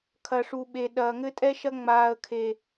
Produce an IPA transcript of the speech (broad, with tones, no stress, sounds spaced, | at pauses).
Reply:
kʰ ɐ˨ ʂ u˨ ɓ e˨ ɗ ɐː˨ ŋ ɘ˦ tʼ ɛ˦ ʃ ɐ˦ ŋ͡m aː˦ ə̯ kʰ e˦